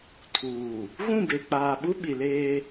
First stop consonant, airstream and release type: aspirated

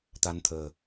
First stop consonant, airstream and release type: plain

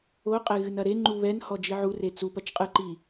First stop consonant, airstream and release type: ejective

